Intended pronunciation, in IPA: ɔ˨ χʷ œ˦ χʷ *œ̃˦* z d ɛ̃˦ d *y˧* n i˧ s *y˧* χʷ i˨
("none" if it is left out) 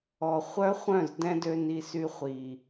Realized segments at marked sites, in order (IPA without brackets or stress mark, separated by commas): œ̃˦˨, ø˧, y˧